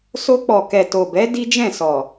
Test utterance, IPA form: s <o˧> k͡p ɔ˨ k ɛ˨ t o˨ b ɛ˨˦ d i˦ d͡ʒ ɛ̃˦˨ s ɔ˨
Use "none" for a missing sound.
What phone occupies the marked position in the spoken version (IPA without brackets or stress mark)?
o˧